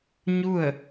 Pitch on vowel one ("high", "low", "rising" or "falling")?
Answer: falling